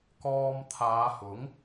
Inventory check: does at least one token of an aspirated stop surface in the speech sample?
yes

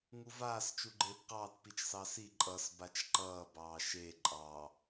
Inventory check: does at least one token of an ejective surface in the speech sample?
yes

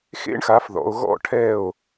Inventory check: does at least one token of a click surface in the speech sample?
no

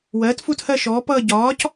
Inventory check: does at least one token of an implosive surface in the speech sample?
no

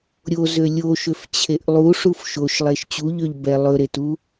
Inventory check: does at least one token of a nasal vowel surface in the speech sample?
no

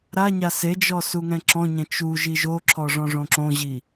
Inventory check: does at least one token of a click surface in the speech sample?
yes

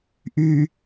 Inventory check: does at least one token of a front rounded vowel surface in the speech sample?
yes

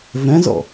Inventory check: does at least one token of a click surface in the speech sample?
no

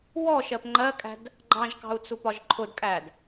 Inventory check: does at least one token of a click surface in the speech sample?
yes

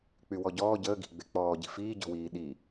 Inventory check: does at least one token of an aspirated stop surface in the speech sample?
no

